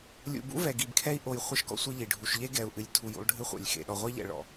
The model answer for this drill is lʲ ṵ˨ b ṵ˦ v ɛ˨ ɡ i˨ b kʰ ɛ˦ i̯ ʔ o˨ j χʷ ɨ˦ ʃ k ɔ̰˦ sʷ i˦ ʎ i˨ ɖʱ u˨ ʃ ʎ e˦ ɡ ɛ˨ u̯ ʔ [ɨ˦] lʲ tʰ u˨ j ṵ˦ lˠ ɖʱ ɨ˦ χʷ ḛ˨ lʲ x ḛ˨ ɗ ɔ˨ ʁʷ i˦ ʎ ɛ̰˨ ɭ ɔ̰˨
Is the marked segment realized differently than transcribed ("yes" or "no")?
yes